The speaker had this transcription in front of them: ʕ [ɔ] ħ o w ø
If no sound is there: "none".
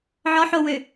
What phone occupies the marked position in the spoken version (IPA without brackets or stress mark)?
ɔ